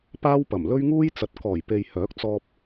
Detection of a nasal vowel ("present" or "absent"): absent